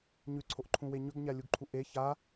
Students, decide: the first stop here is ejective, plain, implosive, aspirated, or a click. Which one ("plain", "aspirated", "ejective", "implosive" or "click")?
click